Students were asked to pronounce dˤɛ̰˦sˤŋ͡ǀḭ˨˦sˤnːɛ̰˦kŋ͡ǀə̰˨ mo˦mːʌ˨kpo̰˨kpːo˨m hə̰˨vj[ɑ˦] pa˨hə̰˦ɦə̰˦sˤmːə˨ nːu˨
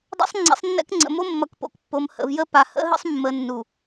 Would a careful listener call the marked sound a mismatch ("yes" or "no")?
yes